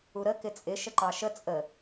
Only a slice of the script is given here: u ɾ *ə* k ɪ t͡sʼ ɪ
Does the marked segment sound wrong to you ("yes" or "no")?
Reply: no